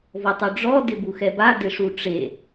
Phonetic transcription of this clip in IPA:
vɔtˤuɖ͡ʐɔ dɪbuxɛba dɪʂuʈ͡ʂe

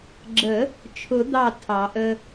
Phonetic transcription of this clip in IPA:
ɡ͡ǁə˨˩˦ | t͡ʃʰʊ˨˩˦d̪ɑ˧˩ tʰɑ˨˩˦ʔə˦

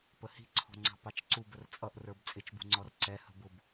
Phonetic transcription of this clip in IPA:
pəhi̤ǀʰɔ̤ŋ͡ǀɑ̤ pɑt͡ʃǀub ərt͡sʼʌʔrə˞b t͡sʼɪt͡ʃbṳŋ͡ǀɔr ǀɛ hə̤bʊb

